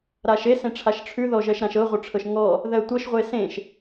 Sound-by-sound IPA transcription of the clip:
ɾ a ʃ e s ẽ ʈ͡ʂʰ a ʃ ʈ͡ʂʰ ʉ ð ɔ ʒ ɜ ʃ ɾ ã ʃ ɤ ʁʷ œ ʈ͡ʂʰ ɤ ʃ ŋ ɔ | ð ɜ tʷ ɤ ʃ ʁʷ e s ẽ ʃ

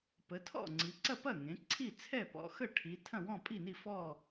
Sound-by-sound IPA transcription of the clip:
p ə˩˧ tʰ ɔ̰˥˩ ŋ͡ǀ i˩˧ ǀ ɐ˥˩ p ɐ˥˩ ŋ ẽ˩˧ ǀʰ i˥˩ t͡sʰ ɛ˥˩ p ɔ̰˩˧ x ə˥˩ ʈʰ i˩˧ tʰ ɐ̃˥˩ w ɔ̃˥˩ pʼ i˥˩ n i˥˩ f ɔ˥˩

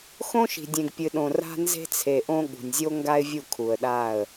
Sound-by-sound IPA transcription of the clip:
x õ˦ ʃ i̤˨ dʲ ẽ˨ ɡ pʲ ɨ˨ ɗ õ˨ r a̤˦ n z e̤˦ t͡sʰ e˨ ʔ õ˦ ɠ ṳ˨ nʲ zʲ o˦ ŋ ɡ a˦ ɪ̯ vʲ u˦˨ kʰ u˨ ə̯ ɗ a˦˨ ə̯

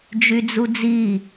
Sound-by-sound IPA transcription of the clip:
d͡ʒ y d͡z u d͡z i

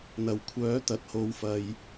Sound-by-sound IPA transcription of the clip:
n̪ ɐ˨˩ w kʷʰ œː˨˥ t̪ ɐ˨˥ t̚ h o˧ w f ɐ˧ j

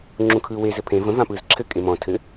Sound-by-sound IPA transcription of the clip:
ŋ͡ǁ ũ kʰ ɯː w e z ɘ pʰ ẽ v ə̃ v ã p ɯː z ǁʰ ɘ kʼ e m ɔ̃ tʰ ɘ

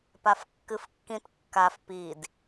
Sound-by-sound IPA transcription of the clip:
p a f kː ɨ f kː ĩ t kː a f p i d

